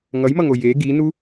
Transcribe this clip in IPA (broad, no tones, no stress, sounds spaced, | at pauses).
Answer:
ŋ ʌ j m ʌ ŋ o j e ɡ i n u